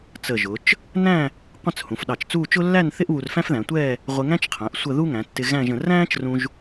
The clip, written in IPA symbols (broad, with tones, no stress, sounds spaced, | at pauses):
t͡s ə˧˩ ʒ ʊ˩˧ t͡ʃ | n æ̃˥˧ | qʷ ə̃˥˧ t͡s h ũ˩˧ f ɗ ɑ˧˩ t͡ʃ t͡s uː˥˧ t͡ʃ ʊ˥ lː æ˥˧ n θ ɪ˥ ʔ β u˧ r f æ̃˥ f ð æ̃˩˧ tʷ ɛː˥˧ | ʁʷ ɪ˧ ŋ æ̃˥ t͡ʃ qʰ æ̃˩˧ ʔ sʷ ə˥˧ ð u˥ ŋ æ̃˩˧ tː ɪ˧ ɣ æ̃˥˧ ʒ ə̃˧ r æ̃ː˥ t͡ʃ r ũ˧ ʒ